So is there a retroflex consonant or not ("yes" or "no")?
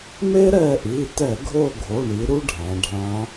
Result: yes